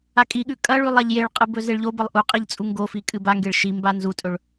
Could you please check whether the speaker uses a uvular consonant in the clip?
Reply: yes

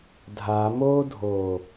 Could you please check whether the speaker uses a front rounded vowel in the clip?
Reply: no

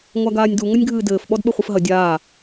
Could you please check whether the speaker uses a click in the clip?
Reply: no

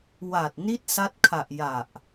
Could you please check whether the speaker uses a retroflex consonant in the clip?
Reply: no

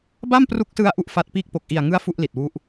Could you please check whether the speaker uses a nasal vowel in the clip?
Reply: no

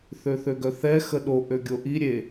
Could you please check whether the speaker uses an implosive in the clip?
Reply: yes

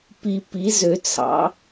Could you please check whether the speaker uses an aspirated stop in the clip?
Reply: yes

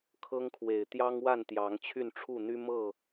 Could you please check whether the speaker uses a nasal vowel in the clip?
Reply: no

